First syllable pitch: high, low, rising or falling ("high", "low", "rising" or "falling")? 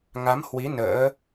rising